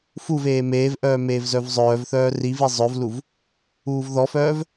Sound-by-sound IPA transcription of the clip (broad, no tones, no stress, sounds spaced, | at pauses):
f u v eː m eː v ʔ œː m eː v z œ v zˤ œː v θ œː r i v i zˤ œ v l u v | uː v ð ɔ f œː v